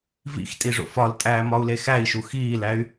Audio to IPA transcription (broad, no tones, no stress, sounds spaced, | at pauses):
v ḭ x tʼ i ʐ o̰ f ɒ l tʼ æː m ɒ u̯ l e x æ i̯ ʃ u x iː l æ y̯